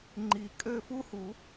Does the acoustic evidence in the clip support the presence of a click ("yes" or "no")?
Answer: yes